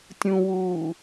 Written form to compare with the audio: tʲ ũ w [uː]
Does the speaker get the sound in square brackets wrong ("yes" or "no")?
no